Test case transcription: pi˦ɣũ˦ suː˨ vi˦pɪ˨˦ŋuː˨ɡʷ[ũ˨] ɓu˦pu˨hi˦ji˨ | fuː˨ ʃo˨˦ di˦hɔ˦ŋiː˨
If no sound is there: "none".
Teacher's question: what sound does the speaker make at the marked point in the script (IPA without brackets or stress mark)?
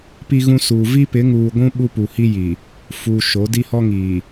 ũ˦